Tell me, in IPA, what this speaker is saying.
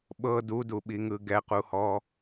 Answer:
ɓɤ duduɓiŋɯ ɡɛquhɔ

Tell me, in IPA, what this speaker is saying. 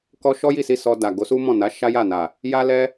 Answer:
kɔ˦ ʃɔ˦ji˦˨si˧ sɔ˧da˨ ɡo˨˦su˦mɔ̃˦˨ na˨˦ ʃa˦ja˦˨na˨ | ja˦lɛ˦

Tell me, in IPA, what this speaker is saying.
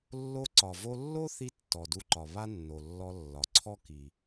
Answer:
lːo˧ǀɒ˩vo˧lːo˥ θi˥tːɔ˩du˧ǃɒ˩ βa˥nːo˩lːɔ˧ lːɒ˩ǀʰɔ˥ ki˩

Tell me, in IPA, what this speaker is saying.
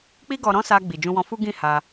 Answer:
k͡pi˦ɡɔ˧ɾɔ̃˦ sa˧ɡ͡bi˨ d͡ʒũ˧wɔ̃˧fu˦ ɡĩ˦˨ha˧

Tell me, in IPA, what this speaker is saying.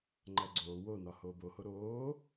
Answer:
ŋ͡ǃæɡ͡ǀoː wonɒ hoːboho ɾoː

